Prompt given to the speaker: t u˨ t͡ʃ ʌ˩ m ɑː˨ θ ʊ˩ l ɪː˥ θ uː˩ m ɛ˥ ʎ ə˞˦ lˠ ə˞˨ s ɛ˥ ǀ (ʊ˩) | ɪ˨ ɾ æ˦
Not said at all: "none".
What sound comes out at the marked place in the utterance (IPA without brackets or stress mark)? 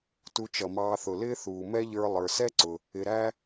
ʊ˨